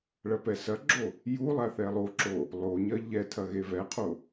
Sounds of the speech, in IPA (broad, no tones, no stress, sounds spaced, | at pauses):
ɭ ɐ p ɛ s ɐ ɡ͡ǁ o | j u lˠ a θ ɛ lˠ o ǁ o | lˠ o ɲ ɐ ʎ ɛ tʰ ɐ ɣ e v ɛ qʰ o